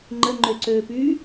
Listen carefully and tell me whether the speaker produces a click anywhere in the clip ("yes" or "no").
yes